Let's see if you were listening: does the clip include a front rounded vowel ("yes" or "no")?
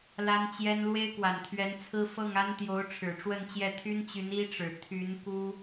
yes